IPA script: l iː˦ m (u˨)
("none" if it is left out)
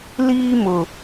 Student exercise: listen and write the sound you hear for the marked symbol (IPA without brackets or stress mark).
ʊ˨